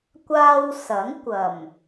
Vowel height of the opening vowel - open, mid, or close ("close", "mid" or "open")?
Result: open